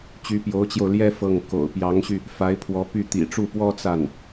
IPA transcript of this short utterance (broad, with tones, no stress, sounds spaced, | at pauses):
t͡ɕ y˧˥ p j o˧˥ ʊ̯ t͡ɕ j o˧ ʊ̯ l j ɛ˥ f ɤ˥˩ ŋ k o̰˨˩ ʊ̯ p j ɑ˧˥ ŋ ɕ y˧ | f a˧˥ ɪ̯ pʰ w ɔ˧˥ p y˥˩ t̪ ḭ˨˩ ʈ͡ʂ u˥˩ p w ɔ˥ t͡s a˥˩ n